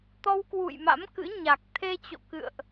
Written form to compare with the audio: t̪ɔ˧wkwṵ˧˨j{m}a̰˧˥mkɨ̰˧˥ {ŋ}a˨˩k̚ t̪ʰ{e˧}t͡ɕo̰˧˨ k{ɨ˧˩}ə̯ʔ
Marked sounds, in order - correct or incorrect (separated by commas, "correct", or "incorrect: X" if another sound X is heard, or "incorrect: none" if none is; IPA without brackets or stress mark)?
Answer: correct, incorrect: ɲ, correct, incorrect: ɨ̰˧˨